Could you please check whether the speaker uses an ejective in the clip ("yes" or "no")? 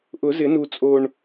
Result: yes